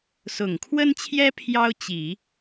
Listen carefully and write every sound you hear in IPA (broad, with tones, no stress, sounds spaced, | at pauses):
s ʊ˨˩ ŋ kʰ w ə˥ n t͡ɕʰ j ɛ˥ pʰ j ɑ˥ ʊ̯ t͡ɕ i˨˩˦